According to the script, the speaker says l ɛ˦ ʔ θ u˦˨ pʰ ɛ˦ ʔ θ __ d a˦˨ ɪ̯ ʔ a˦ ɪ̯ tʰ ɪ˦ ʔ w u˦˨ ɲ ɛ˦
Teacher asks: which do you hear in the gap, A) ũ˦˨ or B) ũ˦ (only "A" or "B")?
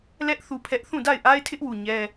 A